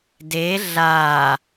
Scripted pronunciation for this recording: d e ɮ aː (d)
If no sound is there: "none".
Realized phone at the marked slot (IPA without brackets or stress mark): none